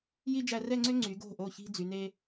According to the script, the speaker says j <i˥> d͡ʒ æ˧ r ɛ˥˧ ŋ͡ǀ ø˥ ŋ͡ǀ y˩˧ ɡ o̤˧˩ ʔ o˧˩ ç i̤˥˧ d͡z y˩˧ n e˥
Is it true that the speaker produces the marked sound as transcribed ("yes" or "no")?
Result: yes